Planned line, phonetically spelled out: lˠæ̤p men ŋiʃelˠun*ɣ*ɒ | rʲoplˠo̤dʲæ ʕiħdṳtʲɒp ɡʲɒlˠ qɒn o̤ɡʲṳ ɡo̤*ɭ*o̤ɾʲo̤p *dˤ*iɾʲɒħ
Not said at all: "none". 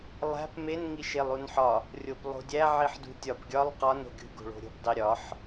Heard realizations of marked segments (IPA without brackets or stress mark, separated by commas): ħ, ɭ, dˤ